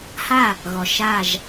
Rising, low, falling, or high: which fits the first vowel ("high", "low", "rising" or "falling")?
falling